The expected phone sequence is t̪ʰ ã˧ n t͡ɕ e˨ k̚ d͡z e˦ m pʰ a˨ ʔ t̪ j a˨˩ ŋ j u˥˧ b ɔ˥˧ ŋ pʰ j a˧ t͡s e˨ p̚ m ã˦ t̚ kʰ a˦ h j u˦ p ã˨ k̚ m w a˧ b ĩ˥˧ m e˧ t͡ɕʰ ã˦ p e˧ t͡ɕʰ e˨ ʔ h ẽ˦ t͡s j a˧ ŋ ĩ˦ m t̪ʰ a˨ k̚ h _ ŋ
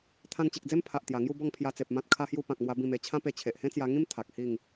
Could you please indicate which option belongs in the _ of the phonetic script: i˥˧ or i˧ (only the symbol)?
i˥˧